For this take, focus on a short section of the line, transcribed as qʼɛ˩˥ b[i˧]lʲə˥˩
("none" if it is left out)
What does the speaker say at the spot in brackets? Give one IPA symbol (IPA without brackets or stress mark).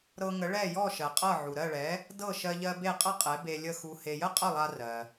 e˧